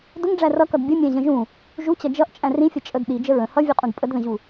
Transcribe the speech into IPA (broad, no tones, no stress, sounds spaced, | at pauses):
d ʊ ŋ ɖ͡ʐ æ r ʌ k ʌ d bʲ ʌ mʲ æ̃ ʑ ə̃ ʒ ũ | ʒ u t͡ɕ ʌ d͡ʒ ʌ ʔ t͡ʃʼ æ̃ r ĩ fʲ ʌ t͡ʃʼ ə d ɗ i d͡ʒ ə ɹ ə̃ h ʌ vʲ u qʼ ũ d pʼ ə d ð ə̃ ʑ u